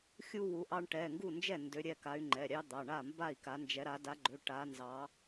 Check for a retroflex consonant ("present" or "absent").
present